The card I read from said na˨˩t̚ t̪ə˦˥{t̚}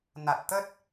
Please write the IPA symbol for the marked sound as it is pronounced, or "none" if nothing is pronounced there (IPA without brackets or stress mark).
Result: t̚